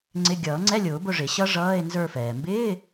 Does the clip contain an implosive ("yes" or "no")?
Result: no